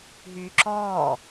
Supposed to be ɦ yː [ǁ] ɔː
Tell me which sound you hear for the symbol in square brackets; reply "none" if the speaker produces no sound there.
ǁ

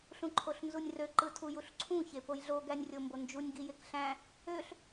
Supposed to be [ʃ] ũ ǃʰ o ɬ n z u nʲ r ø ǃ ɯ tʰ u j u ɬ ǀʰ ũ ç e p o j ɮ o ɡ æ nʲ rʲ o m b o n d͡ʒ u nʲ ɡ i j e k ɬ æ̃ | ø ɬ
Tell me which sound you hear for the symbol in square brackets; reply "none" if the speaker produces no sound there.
ɬ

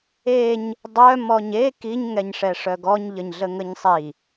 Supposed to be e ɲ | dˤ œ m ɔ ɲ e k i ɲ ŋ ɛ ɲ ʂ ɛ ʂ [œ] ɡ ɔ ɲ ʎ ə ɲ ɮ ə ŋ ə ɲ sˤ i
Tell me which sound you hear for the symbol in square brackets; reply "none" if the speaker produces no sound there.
œ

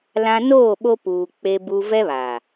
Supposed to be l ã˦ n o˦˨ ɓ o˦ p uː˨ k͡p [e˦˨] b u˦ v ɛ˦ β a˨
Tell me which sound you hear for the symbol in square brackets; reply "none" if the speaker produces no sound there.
e˦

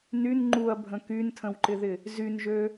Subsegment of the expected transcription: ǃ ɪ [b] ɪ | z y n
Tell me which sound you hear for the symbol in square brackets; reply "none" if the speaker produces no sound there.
ð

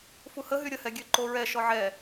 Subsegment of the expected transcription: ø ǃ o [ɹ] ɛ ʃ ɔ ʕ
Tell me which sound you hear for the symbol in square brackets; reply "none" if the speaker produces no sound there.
ɹ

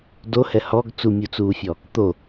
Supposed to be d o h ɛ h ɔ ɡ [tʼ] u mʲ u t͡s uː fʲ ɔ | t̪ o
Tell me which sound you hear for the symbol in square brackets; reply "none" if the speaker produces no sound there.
t͡s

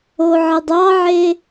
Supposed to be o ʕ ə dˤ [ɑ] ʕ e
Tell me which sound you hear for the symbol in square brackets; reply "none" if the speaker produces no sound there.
ɑ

